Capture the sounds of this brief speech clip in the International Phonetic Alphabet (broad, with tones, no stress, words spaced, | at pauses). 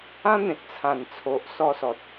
ã˦n̪ẽ˨t̚ t͡sʰã˨˩nt͡sʰo˨ʔ sɔ˧sɔ˨t̚